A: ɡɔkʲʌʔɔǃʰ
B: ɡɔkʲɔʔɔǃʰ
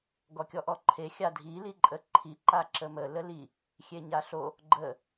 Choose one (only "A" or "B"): B